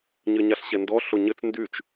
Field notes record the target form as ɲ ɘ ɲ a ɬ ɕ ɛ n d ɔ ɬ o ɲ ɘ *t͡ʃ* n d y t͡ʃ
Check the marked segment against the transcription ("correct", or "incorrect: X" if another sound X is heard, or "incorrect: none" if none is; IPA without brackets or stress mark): incorrect: t͡s